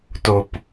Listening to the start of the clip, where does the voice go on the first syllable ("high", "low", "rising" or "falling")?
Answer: low